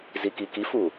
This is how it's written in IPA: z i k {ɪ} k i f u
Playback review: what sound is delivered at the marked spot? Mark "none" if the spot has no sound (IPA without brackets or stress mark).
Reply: i